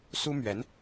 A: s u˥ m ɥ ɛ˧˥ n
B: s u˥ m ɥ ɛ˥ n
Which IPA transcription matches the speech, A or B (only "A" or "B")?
A